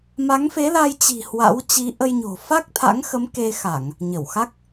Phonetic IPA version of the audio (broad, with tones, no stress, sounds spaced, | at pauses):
m a˨˦ ŋ f e˨˦ l a˧ j t͡ɕ i̤˨˩ h w a̰˧˥ w t͡ɕ i˨˦ ʔ ə˧ j ɲ o̤˨˩ f a˦˥ k̚ t̪ʰ a̰˧˥ ŋ x ə˨˦ m k e˧ x a˧˩˨ ŋ | ɲ ə˧˩ w x a˦˥ k̚